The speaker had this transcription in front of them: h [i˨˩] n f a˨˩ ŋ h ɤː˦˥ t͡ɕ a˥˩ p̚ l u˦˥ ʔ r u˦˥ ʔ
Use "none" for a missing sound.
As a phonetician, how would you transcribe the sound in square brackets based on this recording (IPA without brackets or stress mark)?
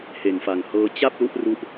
e˨˩